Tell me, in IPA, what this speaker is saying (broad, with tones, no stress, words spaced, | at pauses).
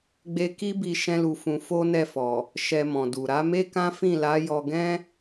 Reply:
ɡ͡be˦ ki˦bi˧ ʃɛ̃˦lu˧fũ˧ fo˦nɛ˦˨fɔ˨ | ʃɛ˧mɔ̃˨du˨ ɾa˨˦me˦kã˦ fĩ˦˨la˨˦ jɔ˧ɡɛ̃˦